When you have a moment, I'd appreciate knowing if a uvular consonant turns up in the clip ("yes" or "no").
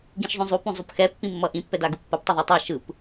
no